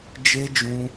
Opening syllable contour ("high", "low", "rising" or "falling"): high